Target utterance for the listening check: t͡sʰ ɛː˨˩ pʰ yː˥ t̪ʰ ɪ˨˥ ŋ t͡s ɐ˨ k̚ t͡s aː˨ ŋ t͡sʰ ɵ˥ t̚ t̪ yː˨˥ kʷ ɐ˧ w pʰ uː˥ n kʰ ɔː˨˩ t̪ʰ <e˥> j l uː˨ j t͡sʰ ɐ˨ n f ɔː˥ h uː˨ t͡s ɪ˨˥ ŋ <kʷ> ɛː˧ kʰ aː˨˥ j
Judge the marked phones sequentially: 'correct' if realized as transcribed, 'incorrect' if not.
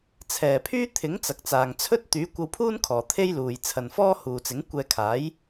correct, correct

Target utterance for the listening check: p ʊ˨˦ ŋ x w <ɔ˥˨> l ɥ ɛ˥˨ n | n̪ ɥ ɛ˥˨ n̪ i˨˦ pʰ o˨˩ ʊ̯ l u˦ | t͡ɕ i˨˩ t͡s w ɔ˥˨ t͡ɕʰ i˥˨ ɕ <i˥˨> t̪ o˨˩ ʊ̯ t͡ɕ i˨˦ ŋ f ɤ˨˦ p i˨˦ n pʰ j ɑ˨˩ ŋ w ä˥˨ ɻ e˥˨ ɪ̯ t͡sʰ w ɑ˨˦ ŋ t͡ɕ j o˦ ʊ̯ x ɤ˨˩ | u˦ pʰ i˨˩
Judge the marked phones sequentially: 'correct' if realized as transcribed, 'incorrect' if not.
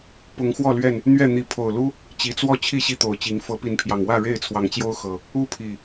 correct, correct

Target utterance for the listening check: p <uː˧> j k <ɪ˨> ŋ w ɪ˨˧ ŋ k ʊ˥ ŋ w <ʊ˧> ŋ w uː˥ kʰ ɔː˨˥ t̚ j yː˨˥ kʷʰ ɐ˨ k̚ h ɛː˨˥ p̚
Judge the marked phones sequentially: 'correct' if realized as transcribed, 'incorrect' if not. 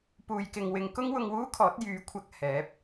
incorrect: uː˨, correct, correct

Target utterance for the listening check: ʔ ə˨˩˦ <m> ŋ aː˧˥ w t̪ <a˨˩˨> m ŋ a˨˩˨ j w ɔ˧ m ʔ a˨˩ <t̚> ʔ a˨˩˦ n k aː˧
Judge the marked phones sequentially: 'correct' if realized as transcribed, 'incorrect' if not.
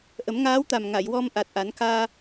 correct, incorrect: a˨˩, correct

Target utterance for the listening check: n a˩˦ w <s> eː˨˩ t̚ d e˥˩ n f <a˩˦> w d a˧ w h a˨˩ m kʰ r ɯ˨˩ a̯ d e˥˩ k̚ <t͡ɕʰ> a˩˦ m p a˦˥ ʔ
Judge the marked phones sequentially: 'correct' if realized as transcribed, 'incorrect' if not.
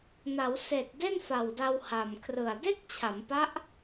correct, incorrect: a˨˩, correct

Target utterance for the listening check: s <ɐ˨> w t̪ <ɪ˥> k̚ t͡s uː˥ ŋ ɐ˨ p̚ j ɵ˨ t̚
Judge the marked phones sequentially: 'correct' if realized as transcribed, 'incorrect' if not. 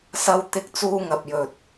incorrect: ɐ˥, correct

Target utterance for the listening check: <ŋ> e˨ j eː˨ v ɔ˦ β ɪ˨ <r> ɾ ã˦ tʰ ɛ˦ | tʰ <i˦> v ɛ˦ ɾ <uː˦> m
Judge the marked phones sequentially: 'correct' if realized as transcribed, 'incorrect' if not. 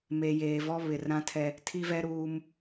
incorrect: m, correct, correct, correct

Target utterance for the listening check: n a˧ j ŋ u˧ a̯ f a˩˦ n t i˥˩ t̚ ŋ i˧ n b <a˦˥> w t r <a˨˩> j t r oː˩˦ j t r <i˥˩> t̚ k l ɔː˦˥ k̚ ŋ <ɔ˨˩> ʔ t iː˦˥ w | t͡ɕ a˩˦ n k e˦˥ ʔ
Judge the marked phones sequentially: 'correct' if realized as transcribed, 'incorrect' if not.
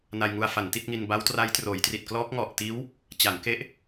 correct, incorrect: a˦˥, incorrect: i˨˩, correct

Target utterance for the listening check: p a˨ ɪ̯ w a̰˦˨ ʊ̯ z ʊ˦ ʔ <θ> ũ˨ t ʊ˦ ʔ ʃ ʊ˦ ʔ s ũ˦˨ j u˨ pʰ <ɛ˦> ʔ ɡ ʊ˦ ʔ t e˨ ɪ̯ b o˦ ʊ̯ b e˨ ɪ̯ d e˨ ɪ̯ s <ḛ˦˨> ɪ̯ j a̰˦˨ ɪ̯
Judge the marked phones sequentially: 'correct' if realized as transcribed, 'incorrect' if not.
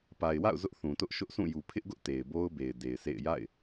correct, incorrect: ɪ˦, correct

